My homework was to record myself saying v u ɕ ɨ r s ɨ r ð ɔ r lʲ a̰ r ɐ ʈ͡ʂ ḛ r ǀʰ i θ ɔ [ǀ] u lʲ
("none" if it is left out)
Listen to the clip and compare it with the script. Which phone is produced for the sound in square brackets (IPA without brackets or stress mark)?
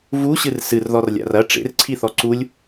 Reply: ǀ